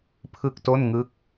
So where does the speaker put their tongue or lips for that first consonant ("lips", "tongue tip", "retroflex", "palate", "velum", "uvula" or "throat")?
lips